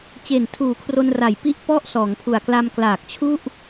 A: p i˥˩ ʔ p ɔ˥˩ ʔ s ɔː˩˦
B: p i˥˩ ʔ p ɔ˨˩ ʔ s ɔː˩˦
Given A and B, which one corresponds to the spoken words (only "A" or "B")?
A